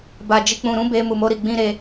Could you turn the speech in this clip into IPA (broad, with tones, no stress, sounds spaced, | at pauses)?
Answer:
b a˨ d͡ʒ i˨ k͡p ũ˨ ɾ ũ˨˦ b e˧ m u˨ m o˧ ɾ i˨ ɡ͡b ĩ˧ ɾ e˧